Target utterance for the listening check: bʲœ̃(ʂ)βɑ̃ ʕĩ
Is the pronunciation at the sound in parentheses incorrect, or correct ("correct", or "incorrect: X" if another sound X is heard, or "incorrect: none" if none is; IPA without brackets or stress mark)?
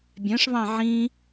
correct